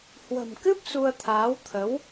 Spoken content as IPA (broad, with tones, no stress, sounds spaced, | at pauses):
h w ə̤˨˩ m k ɨ˦˥ p̚ s u˧ ə̯ t̪ʰ aː˨˦ w t̪ʰ ə˨˦ w